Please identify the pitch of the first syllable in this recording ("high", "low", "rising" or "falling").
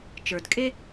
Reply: low